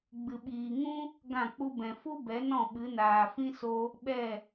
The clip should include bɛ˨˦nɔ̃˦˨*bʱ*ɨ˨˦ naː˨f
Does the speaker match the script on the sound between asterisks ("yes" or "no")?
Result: no